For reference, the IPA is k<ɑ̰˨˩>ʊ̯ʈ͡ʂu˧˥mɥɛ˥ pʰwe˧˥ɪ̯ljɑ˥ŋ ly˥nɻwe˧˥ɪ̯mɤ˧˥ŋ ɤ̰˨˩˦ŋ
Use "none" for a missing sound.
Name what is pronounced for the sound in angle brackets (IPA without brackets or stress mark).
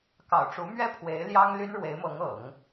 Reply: ɑ̰˨˩